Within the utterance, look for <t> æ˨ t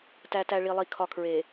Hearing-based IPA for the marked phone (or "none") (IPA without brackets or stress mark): t